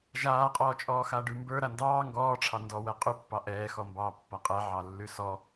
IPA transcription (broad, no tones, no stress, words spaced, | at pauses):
ʒaːqʼɔːt͡ʃʼɔː xaɖʉmbə˞ ɾandɑː ŋɡɔːʈ͡ʂʰɑ ndɔwɛ qʼʉpːɑ ʔɛːxɔmbɑː pːaqʼɛ ʕɑlːʉsɔ